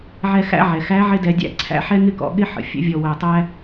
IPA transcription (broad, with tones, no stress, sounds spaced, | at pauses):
ʕ ɛ˧ x æ̰˥ ʕ ɛ˩ x æ˧˥ ʕ ɪ˥ d ɛ˧ dʲ æ̰˥ ǀʰ æ̰˥ ħ ɛ˥ ŋ ɪ˥ k ɔ̰˩˧ ɠ ɪ˥ ħ ə̰˩ fʲ ə̰˧˥ vʲ ɔ˧ w æ˧ tˤ æ˥